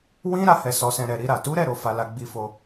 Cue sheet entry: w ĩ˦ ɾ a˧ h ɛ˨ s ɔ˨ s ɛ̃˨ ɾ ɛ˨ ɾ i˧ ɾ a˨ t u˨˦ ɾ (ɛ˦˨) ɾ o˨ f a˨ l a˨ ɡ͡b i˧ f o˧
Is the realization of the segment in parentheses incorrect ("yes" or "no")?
no